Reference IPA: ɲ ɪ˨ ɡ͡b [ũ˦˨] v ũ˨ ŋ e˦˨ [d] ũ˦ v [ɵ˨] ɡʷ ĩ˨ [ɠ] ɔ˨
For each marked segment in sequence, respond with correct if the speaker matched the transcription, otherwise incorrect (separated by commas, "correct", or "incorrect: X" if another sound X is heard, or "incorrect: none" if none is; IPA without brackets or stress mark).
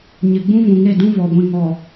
incorrect: ũ˦, correct, incorrect: ɔ˨, incorrect: ŋ